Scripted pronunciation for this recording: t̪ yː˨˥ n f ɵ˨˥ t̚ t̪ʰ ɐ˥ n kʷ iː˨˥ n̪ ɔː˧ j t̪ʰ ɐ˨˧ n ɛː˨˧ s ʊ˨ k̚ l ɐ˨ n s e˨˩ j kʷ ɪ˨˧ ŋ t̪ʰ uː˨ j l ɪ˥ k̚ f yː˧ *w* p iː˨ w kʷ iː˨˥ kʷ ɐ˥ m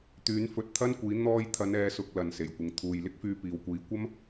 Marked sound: incorrect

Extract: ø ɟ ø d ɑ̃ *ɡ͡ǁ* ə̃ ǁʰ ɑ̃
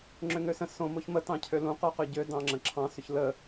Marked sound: incorrect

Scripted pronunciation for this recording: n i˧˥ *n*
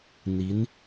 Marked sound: correct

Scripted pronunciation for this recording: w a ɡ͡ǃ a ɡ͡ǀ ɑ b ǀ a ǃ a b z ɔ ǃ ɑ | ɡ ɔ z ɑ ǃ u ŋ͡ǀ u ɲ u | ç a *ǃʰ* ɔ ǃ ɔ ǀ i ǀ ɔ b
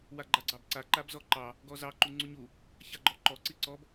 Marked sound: incorrect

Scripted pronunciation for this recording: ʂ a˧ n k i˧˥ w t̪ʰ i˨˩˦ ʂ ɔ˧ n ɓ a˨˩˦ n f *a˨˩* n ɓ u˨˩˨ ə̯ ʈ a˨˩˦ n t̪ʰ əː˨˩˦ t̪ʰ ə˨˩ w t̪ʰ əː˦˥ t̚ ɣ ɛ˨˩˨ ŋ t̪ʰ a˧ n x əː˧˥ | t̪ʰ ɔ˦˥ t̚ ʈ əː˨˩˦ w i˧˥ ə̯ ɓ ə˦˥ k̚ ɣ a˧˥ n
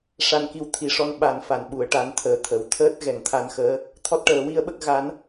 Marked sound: incorrect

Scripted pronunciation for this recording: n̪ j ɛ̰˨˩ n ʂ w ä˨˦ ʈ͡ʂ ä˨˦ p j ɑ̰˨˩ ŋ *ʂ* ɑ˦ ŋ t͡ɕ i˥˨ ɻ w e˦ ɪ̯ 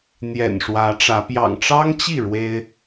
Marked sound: incorrect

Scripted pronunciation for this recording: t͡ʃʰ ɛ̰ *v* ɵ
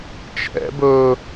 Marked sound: incorrect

